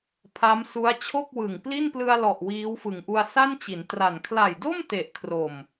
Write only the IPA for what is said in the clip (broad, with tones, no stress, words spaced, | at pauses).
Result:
pʰa˦˥m su˦˥a̯t͡ɕʰo˥˩k̚wɯ˨˩ŋ pli˥˩nplɯ˧a̯lɔ˨˩ʔ wiː˦˥wfɯ˨˩ŋʔu˧a̯ sa˥˩nt͡ɕi˩˦ntra˨˩n kʰla˨˩jdo˥˩m te˨˩ʔkʰro˨˩m